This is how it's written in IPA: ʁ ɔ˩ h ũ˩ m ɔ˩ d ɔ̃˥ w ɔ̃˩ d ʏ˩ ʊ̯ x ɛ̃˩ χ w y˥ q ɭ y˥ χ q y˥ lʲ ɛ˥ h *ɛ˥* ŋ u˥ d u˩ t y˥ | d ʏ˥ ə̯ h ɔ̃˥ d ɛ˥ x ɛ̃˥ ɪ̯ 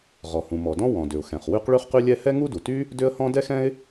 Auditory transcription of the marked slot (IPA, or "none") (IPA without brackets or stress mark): ɛ˥